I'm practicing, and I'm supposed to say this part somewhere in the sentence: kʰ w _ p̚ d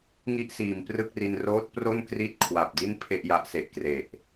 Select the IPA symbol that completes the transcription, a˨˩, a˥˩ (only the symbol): a˨˩